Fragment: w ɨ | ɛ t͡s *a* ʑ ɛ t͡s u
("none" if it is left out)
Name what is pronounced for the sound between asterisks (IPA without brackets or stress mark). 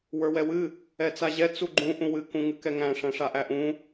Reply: a